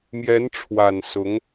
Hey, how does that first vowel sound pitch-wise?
rising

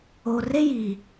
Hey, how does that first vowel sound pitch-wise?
low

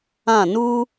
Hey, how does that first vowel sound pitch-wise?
falling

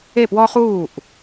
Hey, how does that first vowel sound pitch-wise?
falling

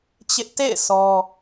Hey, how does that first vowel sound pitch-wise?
high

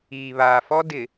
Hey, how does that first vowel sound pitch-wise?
low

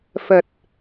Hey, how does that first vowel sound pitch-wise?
low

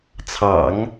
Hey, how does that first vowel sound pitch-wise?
low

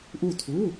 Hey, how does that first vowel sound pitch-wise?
falling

